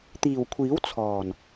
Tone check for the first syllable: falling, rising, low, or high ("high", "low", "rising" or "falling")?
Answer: low